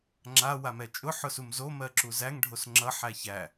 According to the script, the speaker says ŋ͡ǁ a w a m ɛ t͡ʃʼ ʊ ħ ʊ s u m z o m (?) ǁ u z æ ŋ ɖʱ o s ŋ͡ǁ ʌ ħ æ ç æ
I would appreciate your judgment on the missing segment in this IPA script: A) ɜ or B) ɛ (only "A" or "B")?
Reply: A